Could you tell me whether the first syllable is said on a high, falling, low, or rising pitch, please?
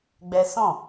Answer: high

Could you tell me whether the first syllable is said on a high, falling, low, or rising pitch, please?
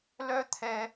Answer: high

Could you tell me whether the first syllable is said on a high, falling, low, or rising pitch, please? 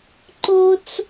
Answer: high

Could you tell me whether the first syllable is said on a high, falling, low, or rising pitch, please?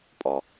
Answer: low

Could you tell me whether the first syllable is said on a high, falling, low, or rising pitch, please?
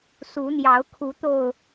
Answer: rising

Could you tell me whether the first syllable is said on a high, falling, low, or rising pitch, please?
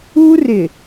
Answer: high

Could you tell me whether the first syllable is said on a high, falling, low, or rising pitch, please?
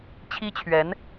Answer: high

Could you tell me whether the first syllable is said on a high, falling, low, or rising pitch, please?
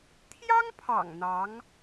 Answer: high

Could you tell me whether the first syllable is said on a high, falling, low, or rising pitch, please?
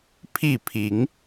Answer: falling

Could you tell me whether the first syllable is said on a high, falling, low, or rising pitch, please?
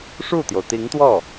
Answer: falling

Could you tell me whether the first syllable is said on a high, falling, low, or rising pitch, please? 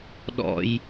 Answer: high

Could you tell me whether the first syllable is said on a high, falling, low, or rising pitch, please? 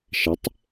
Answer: rising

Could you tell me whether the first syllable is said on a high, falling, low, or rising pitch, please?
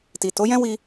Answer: low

